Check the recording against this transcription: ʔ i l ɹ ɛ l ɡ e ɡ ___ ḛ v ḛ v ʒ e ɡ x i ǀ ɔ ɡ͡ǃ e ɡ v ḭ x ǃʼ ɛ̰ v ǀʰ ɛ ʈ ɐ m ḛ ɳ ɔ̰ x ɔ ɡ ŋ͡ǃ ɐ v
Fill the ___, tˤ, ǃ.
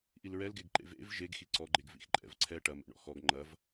ǃ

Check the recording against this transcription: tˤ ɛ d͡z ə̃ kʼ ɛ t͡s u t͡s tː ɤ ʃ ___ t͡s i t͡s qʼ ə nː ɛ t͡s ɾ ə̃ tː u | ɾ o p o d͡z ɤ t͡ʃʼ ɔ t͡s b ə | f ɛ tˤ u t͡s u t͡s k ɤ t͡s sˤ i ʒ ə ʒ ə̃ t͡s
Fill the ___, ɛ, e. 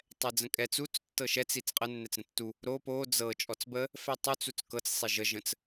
ɛ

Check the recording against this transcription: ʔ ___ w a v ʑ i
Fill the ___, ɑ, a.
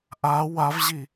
a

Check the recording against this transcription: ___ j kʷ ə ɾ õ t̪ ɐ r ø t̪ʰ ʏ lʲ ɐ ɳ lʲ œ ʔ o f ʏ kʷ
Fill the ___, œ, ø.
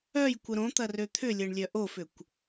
œ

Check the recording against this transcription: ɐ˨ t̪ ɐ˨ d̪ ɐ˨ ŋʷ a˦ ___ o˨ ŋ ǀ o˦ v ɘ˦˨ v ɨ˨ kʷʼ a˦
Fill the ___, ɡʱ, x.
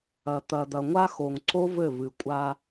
x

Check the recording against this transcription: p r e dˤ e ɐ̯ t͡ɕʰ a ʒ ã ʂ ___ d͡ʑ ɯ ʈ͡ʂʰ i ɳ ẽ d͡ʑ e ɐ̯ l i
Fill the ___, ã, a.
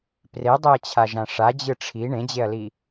a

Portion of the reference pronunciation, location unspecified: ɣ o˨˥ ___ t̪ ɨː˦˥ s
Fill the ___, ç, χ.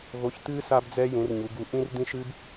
ç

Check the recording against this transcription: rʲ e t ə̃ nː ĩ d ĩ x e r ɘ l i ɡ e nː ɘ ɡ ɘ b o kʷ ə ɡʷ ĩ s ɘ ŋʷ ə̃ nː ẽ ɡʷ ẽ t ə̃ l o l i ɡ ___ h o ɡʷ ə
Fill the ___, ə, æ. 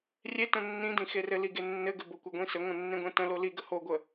ə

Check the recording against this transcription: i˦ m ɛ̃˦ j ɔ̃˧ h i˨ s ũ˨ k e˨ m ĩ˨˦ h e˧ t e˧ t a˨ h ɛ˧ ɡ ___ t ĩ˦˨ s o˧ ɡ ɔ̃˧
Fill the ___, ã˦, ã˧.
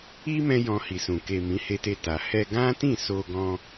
ã˦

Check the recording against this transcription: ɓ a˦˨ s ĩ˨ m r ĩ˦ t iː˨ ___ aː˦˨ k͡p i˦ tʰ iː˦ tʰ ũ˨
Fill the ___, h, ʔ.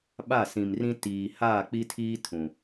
h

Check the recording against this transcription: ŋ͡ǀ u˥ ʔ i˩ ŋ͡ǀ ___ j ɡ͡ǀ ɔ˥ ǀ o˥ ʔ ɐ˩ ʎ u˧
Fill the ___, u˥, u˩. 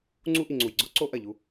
u˩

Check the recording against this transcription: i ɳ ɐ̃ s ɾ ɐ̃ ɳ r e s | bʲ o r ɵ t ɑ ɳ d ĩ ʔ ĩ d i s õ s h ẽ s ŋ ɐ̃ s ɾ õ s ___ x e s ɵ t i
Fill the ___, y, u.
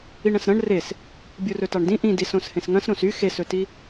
y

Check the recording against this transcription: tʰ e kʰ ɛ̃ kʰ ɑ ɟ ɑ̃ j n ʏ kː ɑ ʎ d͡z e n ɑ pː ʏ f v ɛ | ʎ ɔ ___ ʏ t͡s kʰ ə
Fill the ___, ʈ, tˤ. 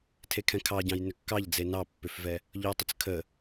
tˤ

